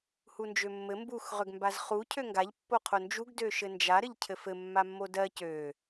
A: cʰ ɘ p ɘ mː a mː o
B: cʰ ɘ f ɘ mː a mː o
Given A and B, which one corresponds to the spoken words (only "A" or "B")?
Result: B